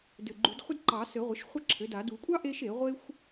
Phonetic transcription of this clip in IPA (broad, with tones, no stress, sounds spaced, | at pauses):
d ɘ˨˩ ɡ͡ǃ u˨˩˦ d χʷ ə˥ d ǃ ɑ˨˩˦ s ɘ˨˩˦ ʁʷ ə˩˥ ʃ χʷ ə˥ ǁʰ ɘ˩˥ d a˨˩˦ d u˨˩˦ kʷʼ ɑ˥ ʔ e˥ ʃ e˨˩˦ ʁʷ e˥ xʷ